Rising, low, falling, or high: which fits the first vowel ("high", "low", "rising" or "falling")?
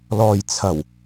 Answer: low